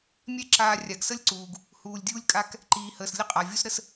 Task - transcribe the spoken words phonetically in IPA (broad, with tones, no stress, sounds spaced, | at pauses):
mʲ ɛ˥ ǁ aː˧ rʲ a˩ ɡ s ə˥ lʲ ǀ uː˩ ɡ | h uː˩ lʲ dʲ uː˧ lʲ kʼ a˧ k | ǃ iː˩ h əː˩ s lʲ ə˧ qʼ a˩ vʲ u˧ s ɾ ə˧ s